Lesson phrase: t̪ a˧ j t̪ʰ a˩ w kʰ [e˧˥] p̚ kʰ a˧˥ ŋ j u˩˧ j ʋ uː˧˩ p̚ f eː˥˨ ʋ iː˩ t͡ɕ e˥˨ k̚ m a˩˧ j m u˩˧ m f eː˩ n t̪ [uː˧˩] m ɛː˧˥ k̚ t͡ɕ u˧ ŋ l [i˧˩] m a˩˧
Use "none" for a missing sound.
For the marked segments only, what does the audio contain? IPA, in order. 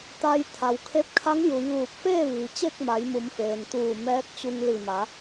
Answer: e˧˥, uː˧˩, i˧˩

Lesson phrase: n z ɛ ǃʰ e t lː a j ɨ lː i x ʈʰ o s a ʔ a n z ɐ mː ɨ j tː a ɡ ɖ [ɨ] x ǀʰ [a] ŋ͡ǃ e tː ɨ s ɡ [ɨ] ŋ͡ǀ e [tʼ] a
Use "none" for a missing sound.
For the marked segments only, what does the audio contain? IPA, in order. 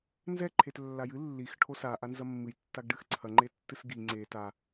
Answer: ɨ, ɐ, i, t

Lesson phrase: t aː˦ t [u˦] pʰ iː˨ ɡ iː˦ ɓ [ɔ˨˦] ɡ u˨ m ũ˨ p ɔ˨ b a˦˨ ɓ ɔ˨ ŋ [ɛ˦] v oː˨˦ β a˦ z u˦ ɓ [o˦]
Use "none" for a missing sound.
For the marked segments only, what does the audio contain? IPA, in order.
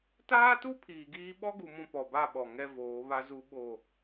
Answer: u˦, ɔ˦, ɛ˦, o˦˨

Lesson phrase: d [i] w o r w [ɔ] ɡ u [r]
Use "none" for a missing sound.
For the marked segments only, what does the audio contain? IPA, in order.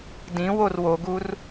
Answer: ĩ, o, r

